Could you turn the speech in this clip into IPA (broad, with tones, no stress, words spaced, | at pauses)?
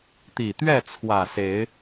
t̪i˨˩ t̪ɥɛ˥˨t͡sʰwä˨˩se˨˦ɪ̯